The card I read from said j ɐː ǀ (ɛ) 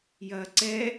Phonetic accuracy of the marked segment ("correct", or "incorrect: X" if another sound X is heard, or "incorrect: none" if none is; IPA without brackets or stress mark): correct